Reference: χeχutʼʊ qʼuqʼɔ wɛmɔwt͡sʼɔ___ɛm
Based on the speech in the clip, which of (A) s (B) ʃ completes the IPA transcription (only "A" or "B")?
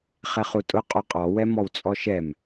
B